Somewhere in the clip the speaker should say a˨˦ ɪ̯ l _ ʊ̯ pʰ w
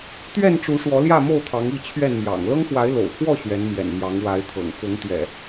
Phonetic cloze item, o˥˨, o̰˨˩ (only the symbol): o̰˨˩